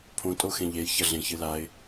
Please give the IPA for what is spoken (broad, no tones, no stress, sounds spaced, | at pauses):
pʰ õ tʼ o x ẽ ʎ e j ç ɐ ɮ ẽ ç ɨ l a ɪ̯